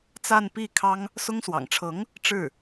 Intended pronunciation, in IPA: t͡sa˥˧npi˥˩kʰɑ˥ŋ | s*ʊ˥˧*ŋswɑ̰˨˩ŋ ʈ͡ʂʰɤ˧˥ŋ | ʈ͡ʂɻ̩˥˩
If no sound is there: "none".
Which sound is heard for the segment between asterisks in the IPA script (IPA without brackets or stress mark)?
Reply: ʊ˥